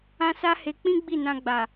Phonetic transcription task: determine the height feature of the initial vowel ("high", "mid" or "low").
low